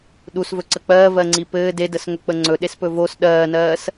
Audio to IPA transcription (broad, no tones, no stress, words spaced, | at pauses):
ɗusvɵǀə k͡pɜːvɜŋ͡ǀi pɘː dedəsŋɵk͡pə ŋ͡ǀɵɗespɵ vos ɗɜːnɜːs